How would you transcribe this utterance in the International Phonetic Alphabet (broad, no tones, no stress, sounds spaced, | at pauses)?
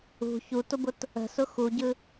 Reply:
ṳ ç u t ʊ b ʊ t | ə̤ s ʊ x u ɟ ɯ